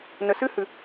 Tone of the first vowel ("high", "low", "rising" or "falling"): low